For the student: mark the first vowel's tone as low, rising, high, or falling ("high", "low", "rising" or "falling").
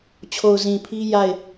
low